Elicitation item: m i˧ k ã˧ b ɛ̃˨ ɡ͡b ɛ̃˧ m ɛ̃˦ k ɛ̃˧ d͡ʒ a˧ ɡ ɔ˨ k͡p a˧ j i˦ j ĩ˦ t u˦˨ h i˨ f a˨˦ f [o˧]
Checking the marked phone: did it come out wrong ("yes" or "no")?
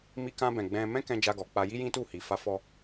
yes